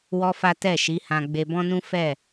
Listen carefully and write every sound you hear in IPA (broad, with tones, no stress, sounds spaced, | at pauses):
w ɔ˦ f a˦ t ɛ˦˨ ʃ i˨˦ h ã˧ ɡ͡b e˧ b ɔ̃˦ n ũ˦ f ɛ˦˨